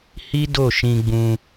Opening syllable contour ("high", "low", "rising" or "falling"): high